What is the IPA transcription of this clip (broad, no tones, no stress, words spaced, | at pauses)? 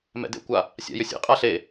mɛ̰dḛkʷa | sʲa̰jʏsʲḛ qʼaɬe